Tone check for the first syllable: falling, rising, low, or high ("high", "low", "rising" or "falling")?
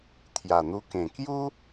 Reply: low